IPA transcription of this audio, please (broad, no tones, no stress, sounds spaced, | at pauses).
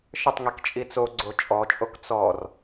ʃ ə tˤ ŋ i k t͡ʃʼ i t͡s o ɡ͡ǀ o t͡ʃʼ ɔ t͡ʃʼ o k t͡s ɔ r